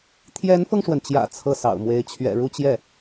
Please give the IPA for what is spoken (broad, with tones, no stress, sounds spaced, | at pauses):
t̪ʰ j ɛ˧˥ n f ɤ˧ ŋ ʂ w ə˩ n t͡ɕ j ä̰˨˩ t͡sʰ ɤ˥˩ s ɑ̰˨˩ ʊ̯ m w e˧˥ ɪ̯ t͡ɕʰ ɥ ɛ̰˨˩ ɻ u˥˧ t͡ɕ j ɛ˥˩